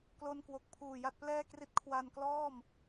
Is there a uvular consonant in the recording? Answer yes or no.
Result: no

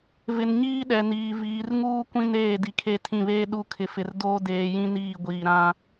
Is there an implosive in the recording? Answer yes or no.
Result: yes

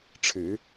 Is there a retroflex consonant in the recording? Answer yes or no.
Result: yes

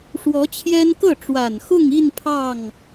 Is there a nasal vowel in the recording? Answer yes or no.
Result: no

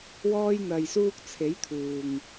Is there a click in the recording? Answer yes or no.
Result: no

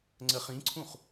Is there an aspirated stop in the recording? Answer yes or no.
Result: yes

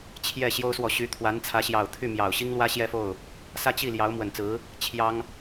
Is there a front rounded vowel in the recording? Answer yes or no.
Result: yes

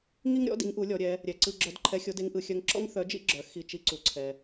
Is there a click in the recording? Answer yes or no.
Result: yes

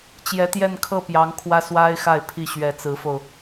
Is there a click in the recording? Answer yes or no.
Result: no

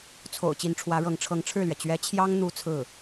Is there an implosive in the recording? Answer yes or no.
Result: no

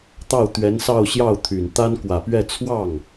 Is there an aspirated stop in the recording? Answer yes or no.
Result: yes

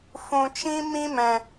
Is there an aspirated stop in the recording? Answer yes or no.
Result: no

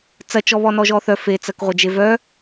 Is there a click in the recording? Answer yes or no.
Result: no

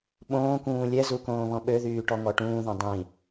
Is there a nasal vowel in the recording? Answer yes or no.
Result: yes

